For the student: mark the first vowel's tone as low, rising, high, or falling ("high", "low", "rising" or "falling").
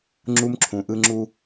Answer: high